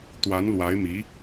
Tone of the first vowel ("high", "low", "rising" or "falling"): rising